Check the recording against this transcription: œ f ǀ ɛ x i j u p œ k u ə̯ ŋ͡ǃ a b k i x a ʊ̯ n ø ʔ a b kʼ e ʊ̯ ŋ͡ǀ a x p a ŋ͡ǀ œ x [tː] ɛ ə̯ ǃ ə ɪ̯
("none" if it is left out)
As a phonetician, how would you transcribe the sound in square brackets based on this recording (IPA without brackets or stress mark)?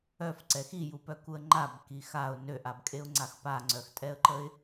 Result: tʼ